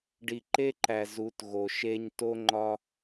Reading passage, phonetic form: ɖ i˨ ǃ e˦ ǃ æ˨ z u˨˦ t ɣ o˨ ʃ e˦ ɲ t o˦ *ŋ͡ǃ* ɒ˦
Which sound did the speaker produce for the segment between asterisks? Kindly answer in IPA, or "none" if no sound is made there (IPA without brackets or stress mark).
ŋ͡ǃ